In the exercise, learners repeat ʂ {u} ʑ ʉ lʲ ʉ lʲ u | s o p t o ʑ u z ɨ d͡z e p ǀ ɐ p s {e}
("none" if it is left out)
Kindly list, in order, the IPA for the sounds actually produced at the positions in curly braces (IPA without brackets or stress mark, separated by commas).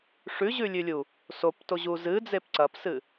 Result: ʉ, ɨ